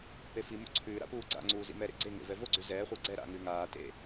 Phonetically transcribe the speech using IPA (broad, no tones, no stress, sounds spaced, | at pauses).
p e f i m o̰ ǀʰ ʉː ɾ a̰ p uː ɡ͡ǀ a̰ ŋ͡ǀ uː z ḭ m ɛ ɾ ḛ ɡ͡ǀ e ŋ ḛ v ɛ v o ɡ͡ǀ ʉ z ɛː χʷ a ɡ͡ǀ ɛ ɾ a̰ ŋ ʉː ŋ aː t ḛ